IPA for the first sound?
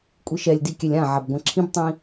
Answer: kʷʼ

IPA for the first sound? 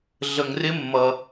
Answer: ɮ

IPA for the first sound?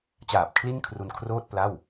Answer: t͡ɕ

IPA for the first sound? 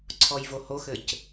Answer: ǀʰ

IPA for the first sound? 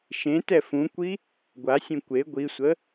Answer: ʃ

